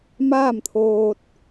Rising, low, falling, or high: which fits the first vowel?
falling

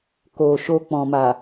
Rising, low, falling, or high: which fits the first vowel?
low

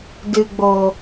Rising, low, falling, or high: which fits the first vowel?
low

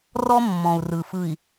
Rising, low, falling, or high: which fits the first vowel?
high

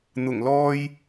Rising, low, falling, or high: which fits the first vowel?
low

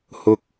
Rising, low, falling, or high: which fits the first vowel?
low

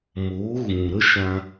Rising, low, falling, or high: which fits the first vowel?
rising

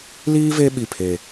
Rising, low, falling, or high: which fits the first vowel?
high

